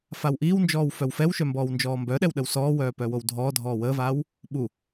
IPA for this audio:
f a w ʔ iː w n d͡ʒ ɔː w f œ w f ɛ w ʃ œ m b ɔː w n d͡ʒ ɔː m b œ ɗ ɛ w ɗ ə w s ɔː w œː p œ w o w dʱ ɔː dʱ ɔː w əː v aː w | ɓ u

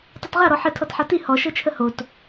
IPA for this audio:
tˤ ʌ t ʁ a ɾ ɔ ħ ə tʰ ɔ t ħ a t i h ɔ ʃ ɤ t͡ʃʰ ə h o t

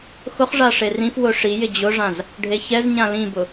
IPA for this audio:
x ʊ χ ʐ a ʂ e r ĩ f w ʊ ʂ i j ɪ d͡ʑ ʊ ʐ ã z | ɖʱ e ç ɛ z ɲ ã l ĩ b ʊ

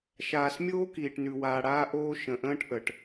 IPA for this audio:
ʃ aː˨ s mʲ oː˦ k iː˨ ʈ n ʉ˨ w aː˨ ɽ aː˦ ʔ oː˦ ʃ ə̃˨ ʔ ə̃ː˦ ʈ ʔ ə˨ ʈ

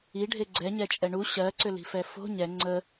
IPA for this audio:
i ɖʱ e ɡ͡ǀ ɛ ɲ ɛ t͡ʃʼ ɛ ɳ u ɕ ɜ ǀ ʏ l i̤ f ɛ f o̤ ɲ ɛ ŋ͡ǀ ə

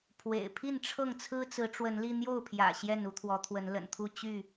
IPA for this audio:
pʰ w ḛ˨˩ ɪ̯ pʰ i˥˨ n ʈ͡ʂʰ ɤ˥˨ ŋ t͡sʰ ɹ̩˦ t͡s ɹ̩˨˦ ʈ͡ʂ w ə˨˦ n l i˧ n̪ j o˥˨ ʊ̯ pʰ j ä̰˨˩ ɕ j ɛ˥˨ n u˨˦ t̪ʰ w ɔ˨˦ t̪ʰ w ə˨˦ n l ə̰˨˩ n t̪ʰ u˥˨ t͡ɕ y˥˨

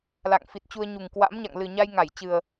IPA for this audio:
l a̰˧˨ ŋ f i˨˩ t̚ t͡ɕ u˧ ə̯ ɲ u˨˩ ŋ k w a̰˧˥ m ɲ a̰˧˨ ŋ l ɨ˨˩ ɲ a˧ j ŋ a˧˩ j t͡ɕ ɨ˨˩ ə̯

